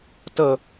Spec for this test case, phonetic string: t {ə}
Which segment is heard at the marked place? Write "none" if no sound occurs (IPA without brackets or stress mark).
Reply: ə